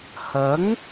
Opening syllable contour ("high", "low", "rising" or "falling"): rising